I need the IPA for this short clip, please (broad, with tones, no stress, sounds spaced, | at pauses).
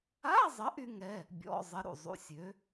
a˧˥˧ zˤ ə˨˥ ʔ y˦˥ ŋ ɛ˧˥˧ | bʲ ɔ̰˧˥˧ zˤ ə˨˥ ɾ ṵ˥˩ zˤ ṵ˧˥˧ sʲ ø˨˥